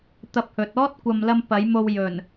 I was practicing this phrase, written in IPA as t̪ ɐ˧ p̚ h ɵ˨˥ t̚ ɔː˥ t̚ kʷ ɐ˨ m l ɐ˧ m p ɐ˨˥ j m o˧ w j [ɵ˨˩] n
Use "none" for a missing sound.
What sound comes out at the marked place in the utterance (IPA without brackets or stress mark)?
ɵ˨˩